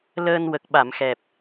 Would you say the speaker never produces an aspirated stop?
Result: yes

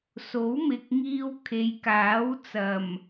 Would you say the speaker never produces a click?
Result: yes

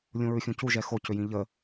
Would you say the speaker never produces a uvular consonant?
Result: yes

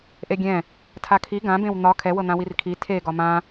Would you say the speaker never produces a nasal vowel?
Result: no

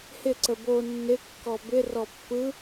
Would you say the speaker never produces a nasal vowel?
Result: yes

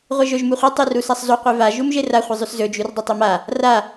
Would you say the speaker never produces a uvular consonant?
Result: no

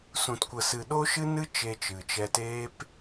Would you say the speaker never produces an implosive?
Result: no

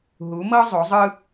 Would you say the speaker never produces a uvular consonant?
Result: yes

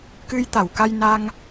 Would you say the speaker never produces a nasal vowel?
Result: yes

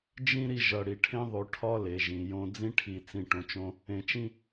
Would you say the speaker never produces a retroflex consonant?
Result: no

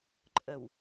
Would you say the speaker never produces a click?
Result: no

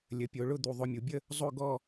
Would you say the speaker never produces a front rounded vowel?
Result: yes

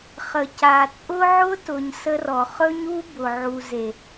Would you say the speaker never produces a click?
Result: yes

